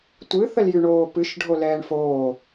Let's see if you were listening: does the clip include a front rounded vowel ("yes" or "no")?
yes